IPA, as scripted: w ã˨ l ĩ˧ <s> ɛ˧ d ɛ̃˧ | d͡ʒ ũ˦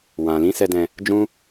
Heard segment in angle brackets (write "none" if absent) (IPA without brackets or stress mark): s